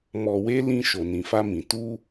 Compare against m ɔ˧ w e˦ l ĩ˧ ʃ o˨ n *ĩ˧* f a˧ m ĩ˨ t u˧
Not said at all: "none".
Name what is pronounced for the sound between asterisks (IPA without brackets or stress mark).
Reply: ĩ˨